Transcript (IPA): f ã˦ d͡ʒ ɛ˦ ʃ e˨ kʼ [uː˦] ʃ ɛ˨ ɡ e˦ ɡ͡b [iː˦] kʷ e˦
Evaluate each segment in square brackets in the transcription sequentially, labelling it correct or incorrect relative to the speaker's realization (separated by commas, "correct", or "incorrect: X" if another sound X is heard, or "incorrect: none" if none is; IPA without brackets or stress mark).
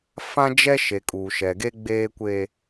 incorrect: uː˨, incorrect: eː˦